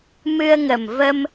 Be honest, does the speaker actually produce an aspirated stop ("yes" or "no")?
no